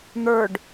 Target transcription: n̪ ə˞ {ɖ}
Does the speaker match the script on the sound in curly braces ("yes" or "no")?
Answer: yes